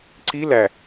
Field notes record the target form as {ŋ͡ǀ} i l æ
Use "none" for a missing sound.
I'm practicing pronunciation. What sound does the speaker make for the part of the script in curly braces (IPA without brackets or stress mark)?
ǀ